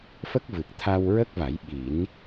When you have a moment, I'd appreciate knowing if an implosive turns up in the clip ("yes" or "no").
yes